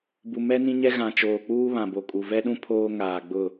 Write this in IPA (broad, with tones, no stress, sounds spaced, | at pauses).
b u˨ m ɛ˦ n ĩ˦ ɲ ɛ˦ ɣ ã˨ t͡ʃ oː˨ k͡p uː˦ β ã˨ b o˨ kʼ u˨ v ɛ˦ ɗ ũ˦ pʰ oː˦ ŋ aː˨ ɡ͡b ʊ˦˨